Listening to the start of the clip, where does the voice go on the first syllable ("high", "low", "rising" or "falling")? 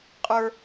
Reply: high